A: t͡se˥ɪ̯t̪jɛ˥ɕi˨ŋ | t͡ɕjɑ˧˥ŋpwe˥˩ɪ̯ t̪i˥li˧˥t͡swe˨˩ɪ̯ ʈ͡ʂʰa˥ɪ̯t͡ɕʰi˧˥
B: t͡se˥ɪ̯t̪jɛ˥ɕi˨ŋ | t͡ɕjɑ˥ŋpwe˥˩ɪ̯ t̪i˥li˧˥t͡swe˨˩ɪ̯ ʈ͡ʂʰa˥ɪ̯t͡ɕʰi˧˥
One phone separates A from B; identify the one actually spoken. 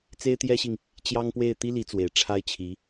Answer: B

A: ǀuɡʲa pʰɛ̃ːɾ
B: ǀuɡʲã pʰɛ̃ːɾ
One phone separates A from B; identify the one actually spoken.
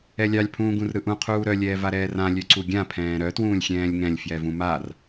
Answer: B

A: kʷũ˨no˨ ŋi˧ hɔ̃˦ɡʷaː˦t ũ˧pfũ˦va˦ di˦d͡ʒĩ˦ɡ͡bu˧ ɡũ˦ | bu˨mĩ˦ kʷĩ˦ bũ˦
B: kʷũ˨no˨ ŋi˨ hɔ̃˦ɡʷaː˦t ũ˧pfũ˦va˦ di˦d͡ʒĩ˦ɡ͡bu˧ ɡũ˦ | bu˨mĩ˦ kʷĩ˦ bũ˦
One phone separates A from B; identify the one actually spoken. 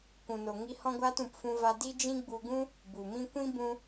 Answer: A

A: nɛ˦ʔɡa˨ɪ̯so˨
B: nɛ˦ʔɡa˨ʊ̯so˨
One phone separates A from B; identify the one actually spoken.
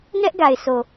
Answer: A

